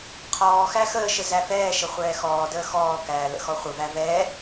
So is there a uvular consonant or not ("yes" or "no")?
yes